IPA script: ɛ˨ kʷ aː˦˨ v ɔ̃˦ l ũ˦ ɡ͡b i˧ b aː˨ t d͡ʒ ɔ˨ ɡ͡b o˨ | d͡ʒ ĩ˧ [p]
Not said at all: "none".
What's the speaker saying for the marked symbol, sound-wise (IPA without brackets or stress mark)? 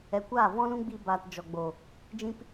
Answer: p